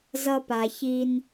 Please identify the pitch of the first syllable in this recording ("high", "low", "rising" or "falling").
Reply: high